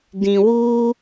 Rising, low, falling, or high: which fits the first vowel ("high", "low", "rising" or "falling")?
low